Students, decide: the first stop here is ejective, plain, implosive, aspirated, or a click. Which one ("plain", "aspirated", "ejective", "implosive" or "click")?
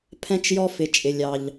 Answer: aspirated